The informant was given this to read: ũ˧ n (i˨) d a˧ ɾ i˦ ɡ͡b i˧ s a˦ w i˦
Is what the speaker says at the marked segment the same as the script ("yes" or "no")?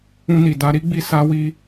yes